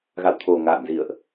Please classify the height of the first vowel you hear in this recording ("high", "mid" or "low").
low